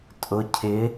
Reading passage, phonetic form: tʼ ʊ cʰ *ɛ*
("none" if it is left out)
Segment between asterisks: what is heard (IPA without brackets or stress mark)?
ɪ